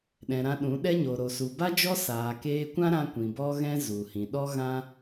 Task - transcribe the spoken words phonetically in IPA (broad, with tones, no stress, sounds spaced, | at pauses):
ɗ ɛ̃˨ ɾ ã˧ ɗ ũ˨˦ ɗ ɛ˦ ɲ o˨ ɾ o˨ s u˨ b a˦ d͡ʒ ɔ˦ s aː˨ k eː˧ kʷ ã˦ ɾ ã˧ kʷ ĩ˨ b ɔ˦ ɣ ɛ̃˦ z u˨ h ĩ˨ ɗ ɔ˦ ɣ ã˦